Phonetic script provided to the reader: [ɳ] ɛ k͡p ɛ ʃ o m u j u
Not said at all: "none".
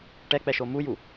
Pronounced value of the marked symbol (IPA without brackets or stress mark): ʈ